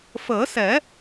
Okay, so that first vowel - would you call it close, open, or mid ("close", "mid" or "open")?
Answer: mid